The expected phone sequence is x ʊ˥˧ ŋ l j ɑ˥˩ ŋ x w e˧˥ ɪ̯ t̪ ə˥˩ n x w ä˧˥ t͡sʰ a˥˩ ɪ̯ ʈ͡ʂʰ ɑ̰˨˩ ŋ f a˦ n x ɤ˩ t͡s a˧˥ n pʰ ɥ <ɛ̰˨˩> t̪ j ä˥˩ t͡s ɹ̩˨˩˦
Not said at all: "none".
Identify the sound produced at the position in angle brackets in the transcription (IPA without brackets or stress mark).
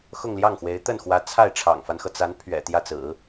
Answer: ɛ̰˨˩